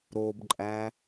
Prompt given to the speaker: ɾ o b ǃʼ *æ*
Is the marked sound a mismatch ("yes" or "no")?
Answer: no